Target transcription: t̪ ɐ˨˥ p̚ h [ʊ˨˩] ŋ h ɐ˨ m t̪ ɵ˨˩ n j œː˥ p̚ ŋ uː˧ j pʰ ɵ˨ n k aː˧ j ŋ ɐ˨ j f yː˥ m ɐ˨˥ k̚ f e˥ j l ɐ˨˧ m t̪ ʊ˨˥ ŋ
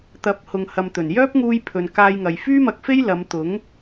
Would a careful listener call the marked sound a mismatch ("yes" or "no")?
yes